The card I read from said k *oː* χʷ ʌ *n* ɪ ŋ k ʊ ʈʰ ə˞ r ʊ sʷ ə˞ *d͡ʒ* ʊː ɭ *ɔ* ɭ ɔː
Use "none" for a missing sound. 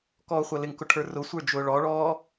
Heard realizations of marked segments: ɔː, l, d͡ʒ, ɔ

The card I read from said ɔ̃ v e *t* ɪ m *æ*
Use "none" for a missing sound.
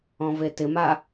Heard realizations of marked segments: t, a

